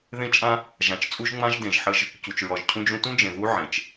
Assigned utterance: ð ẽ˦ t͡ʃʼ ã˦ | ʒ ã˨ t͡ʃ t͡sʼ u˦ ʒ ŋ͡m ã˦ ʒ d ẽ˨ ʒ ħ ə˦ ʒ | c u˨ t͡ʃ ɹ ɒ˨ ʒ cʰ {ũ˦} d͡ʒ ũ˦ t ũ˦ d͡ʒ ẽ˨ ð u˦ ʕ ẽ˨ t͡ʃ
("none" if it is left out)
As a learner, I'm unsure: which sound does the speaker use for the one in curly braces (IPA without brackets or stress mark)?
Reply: ũ˦